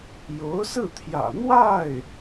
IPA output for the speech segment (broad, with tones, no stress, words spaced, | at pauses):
jo˧˥ʊ̯sɹ̩˥˩t̪ʰjä̰˨˩ n̪wa˥˩ɪ̯